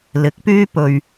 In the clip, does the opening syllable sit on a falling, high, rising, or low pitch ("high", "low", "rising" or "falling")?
rising